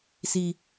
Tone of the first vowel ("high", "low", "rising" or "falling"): high